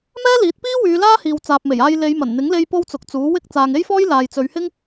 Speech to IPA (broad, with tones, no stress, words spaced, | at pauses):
mɛː˥liː˨˥t̚piː˥ wyː˨˧laː˥hiː˨w t͡saː˨p̚me˨˩jaː˧j le˨˧jmɐ˨˩nn̪ɪ˨˥ŋle˧j po˥wt͡sʊ˨k̚t͡suː˨˥ wɪ˧k̚ t͡saː˨ŋe˥jfɔː˥j laː˨jt͡sɵ˨˧ɥhɪ˥ŋ